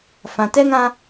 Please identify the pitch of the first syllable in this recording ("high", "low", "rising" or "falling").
low